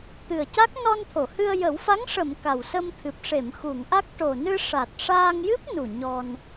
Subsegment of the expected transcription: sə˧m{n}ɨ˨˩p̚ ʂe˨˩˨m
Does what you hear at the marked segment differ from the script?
yes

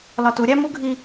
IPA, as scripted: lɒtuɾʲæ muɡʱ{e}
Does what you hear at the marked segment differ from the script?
yes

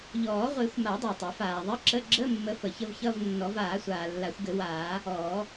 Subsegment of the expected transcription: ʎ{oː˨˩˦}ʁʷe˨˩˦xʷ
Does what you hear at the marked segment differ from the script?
yes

